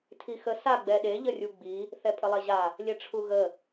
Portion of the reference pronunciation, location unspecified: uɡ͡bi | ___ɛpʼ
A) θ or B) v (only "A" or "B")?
A